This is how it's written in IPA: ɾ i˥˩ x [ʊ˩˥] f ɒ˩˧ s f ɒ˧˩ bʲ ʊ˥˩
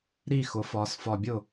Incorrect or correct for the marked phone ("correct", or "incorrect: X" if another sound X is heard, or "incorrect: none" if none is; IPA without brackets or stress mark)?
correct